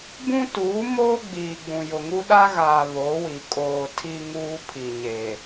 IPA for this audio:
b ũ˦ t uː˨˦ m oː˦ ɡ͡b iː˨ ɡ͡b ũ˨ j ʊ˨ ŋ u˦ ɗ a˦ ɣ aː˨ β o˨˦ w i˨ kʼ oː˨ tʰ i˦ ŋ uː˦ pʰ i˨ ɲ e˨

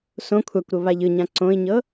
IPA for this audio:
s õ kʷʰ a kʷ ɾ o β a ʎ ɯ ɲ ã ǀ õ i̯ ɲ ɤ

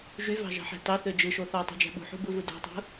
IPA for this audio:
ʒ y v ɑ̤ ʒ ɑ̤ ħ æ̤ t ɑ θ ø d͡ʒ ɯ ʃ o θ ɑ tˤ ṳ d͡ʒ æ̤ ɓ ṳ ħ ṳ b ɯ v u d o̤ tˤ ṳ

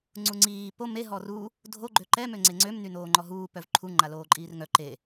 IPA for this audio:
ŋ͡ǀ u ŋ͡ǀ iː p o m e ɦ ɔ r u | dʱ o ɡ͡ǃ ø ǃ ɛ m ø ŋ͡ǀ e ŋ͡ǀ ø m n y n oː ŋ͡ǃ ɔ ɦ uː p œ v ǃʰ u ŋ͡ǃ a l oː ǃʼ iː r ŋ œ ǃ e

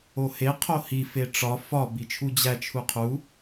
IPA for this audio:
o h e qʰ o h i f e ʈ͡ʂ ɒ f ɒ b i t͡ʃʰ u d͡ʑ æ t͡ʃʰ u qʰ u

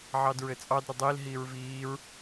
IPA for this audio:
ʕ ɑ d ɹ ɘ t͡sʼ ɑ d ɾ ɘ dˤ iː l ɦ iː ɹ v iː ɹ

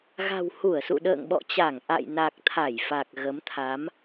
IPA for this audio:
ɣ a̤˨˩ w h u˧˩ ə̯ s ṵ˧˨ ɗ ə̰ː˧˨ ŋ ɓ ɔ̰˧˨ t͡ɕ a˧˩ ŋ ʔ a̰˧˨ j n a˨˩ k̚ t̪ʰ a˧˩ j f a˨˩ k̚ ɣ ə˨˦ m t̪ʰ a˨˦ m

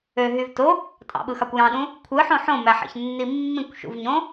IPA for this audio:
ø ɦ y v t o | tʼ ɑ̰ ɓ ɯ x ɑ kʷ j ɑ̃ ɗ ũ | kʷʰ ɯ ħ õ ħ õ m æ ħ ḛ ç nː i mː ĩ kʷ ʃ ṵ v ɲ õ

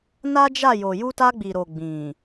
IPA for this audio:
n a˦ d͡ʒ a˦˨ j o˨ j u˧ t a˧ ɡ͡b i˨ ɾ o˨ ɡ͡b ĩ˨

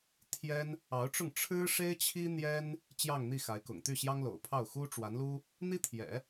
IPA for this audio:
t̪ʰ j ɛ˥ n | ɑ˧˥ ʊ̯ ʈ͡ʂ ʊ˥˩ ŋ ʈ͡ʂʰ ɻ̩˥ ʂ e˥ ɪ̯ t͡ɕʰ i˥ n̪ j ɛ˥ n | t͡ɕ j ɑ˥˧ ŋ n̪ i˥˩ x a˧˥ ɪ̯ k ʊ̰˨˩ ŋ t̪ y˥˩ ɕ j ɑ˥ ŋ l o̰˨˩ ʊ̯ pʰ ɑ˥˩ ʊ̯ x u˥ ʈ͡ʂ w a˧˥ n l u˥ | n̪ i˥ t̪ʰ j ɛ̰˨˩˦

